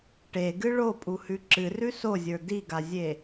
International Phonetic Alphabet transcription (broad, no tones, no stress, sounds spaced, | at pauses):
ʈ e ɡ ɨ ɭ o pʼ u h ʉ ǁ ɨ r ʉ s o zʲ ə˞ d i ɡ a zʲ e